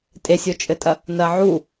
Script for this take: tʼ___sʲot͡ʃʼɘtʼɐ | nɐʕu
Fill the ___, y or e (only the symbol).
e